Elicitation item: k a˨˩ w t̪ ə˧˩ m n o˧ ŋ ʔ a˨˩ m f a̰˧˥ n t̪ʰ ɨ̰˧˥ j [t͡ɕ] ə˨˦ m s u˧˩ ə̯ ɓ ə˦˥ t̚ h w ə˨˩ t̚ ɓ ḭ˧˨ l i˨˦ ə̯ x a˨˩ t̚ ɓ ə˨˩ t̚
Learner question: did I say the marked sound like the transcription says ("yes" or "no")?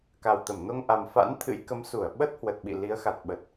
no